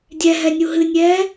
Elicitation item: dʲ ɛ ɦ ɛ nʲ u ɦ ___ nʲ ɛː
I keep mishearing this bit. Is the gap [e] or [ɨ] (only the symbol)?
ɨ